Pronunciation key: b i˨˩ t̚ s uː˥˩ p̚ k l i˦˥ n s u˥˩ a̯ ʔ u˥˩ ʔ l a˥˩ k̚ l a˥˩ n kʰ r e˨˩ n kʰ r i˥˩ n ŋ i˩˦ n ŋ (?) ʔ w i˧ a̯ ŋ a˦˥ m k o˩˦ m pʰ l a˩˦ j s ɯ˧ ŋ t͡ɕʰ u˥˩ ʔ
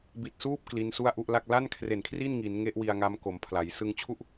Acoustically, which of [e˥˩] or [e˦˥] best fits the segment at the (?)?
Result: e˦˥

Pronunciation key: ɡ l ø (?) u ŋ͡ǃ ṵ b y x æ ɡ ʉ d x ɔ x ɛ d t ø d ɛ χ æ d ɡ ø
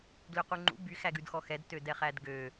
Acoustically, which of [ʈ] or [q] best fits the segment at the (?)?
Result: q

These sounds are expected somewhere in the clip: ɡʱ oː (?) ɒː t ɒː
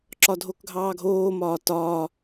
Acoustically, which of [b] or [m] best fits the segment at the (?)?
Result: m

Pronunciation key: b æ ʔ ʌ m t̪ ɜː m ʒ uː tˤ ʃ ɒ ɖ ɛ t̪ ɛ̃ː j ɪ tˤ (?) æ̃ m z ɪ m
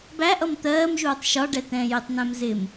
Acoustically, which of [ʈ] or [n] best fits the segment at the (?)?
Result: n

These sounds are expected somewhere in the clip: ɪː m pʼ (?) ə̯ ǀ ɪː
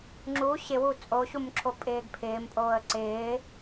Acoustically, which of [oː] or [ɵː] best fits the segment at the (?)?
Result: oː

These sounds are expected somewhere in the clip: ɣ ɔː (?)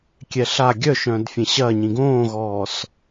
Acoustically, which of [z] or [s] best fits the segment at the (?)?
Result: s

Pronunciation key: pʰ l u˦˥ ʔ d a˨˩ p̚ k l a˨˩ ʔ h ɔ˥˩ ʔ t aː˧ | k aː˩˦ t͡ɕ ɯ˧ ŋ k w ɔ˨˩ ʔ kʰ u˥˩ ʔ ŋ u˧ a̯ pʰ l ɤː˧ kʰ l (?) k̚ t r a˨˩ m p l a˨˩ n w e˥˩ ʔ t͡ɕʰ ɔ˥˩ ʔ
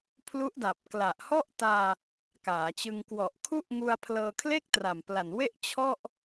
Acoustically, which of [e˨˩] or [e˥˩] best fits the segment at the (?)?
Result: e˥˩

